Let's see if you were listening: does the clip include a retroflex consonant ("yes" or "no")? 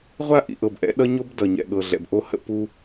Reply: no